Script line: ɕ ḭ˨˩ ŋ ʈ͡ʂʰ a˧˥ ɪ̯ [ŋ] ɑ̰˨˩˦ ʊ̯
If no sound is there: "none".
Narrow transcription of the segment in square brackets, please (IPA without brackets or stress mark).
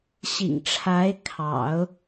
kʰ